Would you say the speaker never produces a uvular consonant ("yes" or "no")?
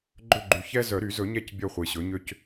no